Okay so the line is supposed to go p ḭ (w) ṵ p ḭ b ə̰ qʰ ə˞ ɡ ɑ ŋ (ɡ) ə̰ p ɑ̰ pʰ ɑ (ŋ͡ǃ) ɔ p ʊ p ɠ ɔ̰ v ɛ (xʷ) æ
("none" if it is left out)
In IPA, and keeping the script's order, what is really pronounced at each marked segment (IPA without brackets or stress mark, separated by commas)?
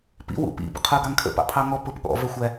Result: w, kʰ, ŋ, xʷ